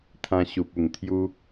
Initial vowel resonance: nasal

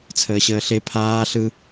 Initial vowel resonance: oral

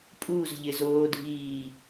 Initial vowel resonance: oral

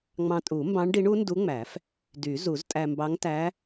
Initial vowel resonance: nasal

